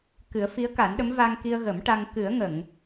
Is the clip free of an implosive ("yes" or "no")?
no